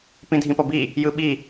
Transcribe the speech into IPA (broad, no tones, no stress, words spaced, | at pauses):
pĩdʱĩpʌbi | jɯɓi